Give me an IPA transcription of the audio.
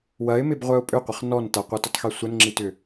w ɐ ɪ̯ m ɪ b ʁʷ œ ʊ̯ pʼ ʏ qʷ ɪ χ n ɔ n t ɐ qʷ ɐ t ʏ tˤ x i sʷ ə n ŋ͡ǁ i t ʏ

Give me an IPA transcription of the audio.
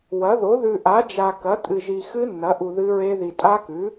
w ɐ˩˥ ð o˩˥ ð ʉ˨ ʔ a˩˥ d͡ʒ a˨ k ɐ˩˥ tʼ ɨ˨ ʒ i˨ x ɨ˦˥ nː ɐ˩˥ ʔ u˨ ð ɨ˦˥ ɹ e˦˥ ð i˨ tʼ a˦˥ k ʉ˩˥

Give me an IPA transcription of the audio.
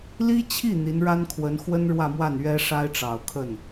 l i˥ t͡ɕʰ i˥˩ n̪ i˧˥ n ɻ a˥ n kʰ w ə˧˥ n x w ə˥ n ɻ w ä˥˧ m w a˥˩ n ɥ ɛ˥ ʂ a˥ ɪ̯ ʈ͡ʂ ɑ˨˩ ʊ̯ kʰ ə˥˩ n

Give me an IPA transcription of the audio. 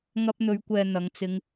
ŋ ɐ˧ p̚ n̪ ɵ˨˧ ɥ kʷ ɛː˨ n̪ ɐ˨˧ ŋ t͡s ɪ˧ ŋ

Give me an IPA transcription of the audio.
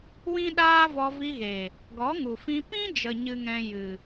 w ĩ˦ ɗ aː˦ v ɔ˧ v i˧ ɣ e˨ | ɡ ɔ˨˦ ŋ u˨ f ĩ˧ p ĩ˦ d͡ʒ ə˨ ɲ ɨ˦ ŋ ɛ̃˦ j ɨ˨

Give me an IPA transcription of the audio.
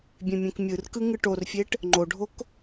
bʲ ẽ mʲ ẽ k mʲ ɯ r k ɯ ŋ ɯ ʈ o r fʲ e ʈ | ŋ͡ǃ o ɖʱ o k

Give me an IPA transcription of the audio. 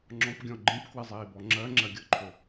ŋ͡ǁ ɔ̃ p ɡʲ ɔ̃ ɡ͡ǃ ĩ p k w ɪ zˤ iː b ɔ ŋ͡ǁ ɜ ŋ͡ǁ ɜ ɡʲ ɤ ǃʰ o

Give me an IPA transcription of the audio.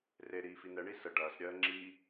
r e ɾ iː f i n ɛ ɳ i s ə ɖ ɐː s ɾʲ ɜː ŋ͡ǁ i

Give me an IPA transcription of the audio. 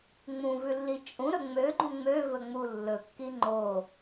ŋ͡m ũ v ʉ lː i t͡ʃʼ ũ ɾ ɵ ŋ͡m ø ɡ͡ǃ ũ ŋ͡m ø v ɵ ŋ͡m u lː ɵ kː i ŋ͡ǃ o

